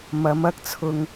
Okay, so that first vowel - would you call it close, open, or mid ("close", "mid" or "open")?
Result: open